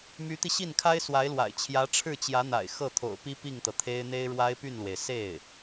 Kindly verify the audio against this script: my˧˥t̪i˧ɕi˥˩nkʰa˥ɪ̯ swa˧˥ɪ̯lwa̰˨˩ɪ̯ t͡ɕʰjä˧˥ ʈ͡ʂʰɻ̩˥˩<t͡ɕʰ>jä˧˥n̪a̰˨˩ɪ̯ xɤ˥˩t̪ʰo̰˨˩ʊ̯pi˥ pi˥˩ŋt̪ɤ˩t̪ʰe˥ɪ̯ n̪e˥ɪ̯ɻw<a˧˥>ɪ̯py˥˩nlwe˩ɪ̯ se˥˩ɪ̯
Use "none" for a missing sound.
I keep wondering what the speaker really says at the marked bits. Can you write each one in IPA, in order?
t͡ɕ, a˥

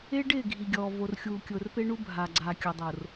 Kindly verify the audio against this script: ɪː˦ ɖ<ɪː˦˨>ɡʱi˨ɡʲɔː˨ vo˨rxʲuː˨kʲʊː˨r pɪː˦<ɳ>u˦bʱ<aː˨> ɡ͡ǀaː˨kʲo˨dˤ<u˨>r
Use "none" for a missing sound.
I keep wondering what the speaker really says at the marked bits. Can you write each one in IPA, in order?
ɪː˦˨, ɳ, aː˨, o˨

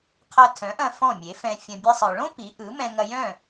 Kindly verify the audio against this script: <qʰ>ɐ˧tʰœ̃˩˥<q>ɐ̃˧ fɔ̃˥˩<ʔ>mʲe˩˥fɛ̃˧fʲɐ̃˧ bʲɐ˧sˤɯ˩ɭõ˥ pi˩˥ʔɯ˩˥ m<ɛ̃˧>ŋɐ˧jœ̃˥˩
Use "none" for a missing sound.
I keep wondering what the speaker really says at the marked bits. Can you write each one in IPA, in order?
qʰ, ʔ, none, ɛ̃˧

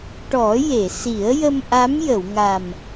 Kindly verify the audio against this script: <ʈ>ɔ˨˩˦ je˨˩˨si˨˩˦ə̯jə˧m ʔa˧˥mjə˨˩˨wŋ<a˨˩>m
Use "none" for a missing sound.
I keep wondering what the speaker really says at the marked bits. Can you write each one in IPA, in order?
ʈ, a˨˩

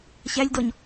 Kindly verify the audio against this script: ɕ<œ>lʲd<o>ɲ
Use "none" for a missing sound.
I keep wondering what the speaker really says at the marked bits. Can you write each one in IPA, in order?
æ, ɔ

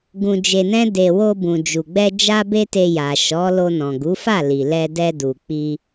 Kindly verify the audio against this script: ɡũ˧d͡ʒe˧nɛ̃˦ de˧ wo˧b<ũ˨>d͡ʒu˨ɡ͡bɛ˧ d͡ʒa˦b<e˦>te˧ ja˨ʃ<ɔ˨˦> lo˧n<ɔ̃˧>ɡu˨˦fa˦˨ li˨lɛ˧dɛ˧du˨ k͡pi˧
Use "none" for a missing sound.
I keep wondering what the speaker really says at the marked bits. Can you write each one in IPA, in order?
ũ˨, e˦, ɔ˨˦, ɔ̃˨

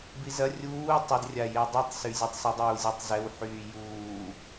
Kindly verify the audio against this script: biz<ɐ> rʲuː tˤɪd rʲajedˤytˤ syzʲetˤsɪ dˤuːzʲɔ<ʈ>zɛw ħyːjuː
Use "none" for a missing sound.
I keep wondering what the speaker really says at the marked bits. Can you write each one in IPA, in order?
ɐ, tˤ

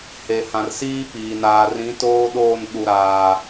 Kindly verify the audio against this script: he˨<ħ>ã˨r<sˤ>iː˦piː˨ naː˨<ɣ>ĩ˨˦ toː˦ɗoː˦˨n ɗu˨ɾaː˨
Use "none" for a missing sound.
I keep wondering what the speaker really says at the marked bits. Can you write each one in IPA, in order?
h, s, r

